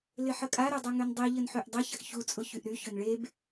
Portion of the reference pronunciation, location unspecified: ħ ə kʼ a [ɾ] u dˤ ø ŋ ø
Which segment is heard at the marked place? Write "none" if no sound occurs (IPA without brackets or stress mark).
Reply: ɾ